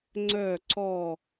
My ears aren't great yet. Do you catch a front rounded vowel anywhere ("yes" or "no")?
yes